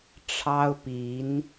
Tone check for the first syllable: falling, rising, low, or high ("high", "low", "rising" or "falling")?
high